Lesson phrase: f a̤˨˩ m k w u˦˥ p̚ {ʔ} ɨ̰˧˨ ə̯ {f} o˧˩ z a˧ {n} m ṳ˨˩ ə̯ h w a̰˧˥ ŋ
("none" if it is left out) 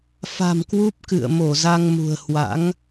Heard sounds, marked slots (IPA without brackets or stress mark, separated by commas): k, m, ŋ